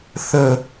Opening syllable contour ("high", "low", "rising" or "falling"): falling